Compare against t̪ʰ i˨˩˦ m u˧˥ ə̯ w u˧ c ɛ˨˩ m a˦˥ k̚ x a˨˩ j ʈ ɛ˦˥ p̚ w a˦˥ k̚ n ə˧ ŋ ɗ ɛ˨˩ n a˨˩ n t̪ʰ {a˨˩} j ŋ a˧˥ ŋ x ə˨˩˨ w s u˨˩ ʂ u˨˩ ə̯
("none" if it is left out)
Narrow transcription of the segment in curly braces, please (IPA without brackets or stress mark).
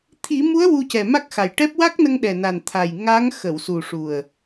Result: a˨˩